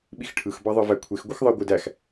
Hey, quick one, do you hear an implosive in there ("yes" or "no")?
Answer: yes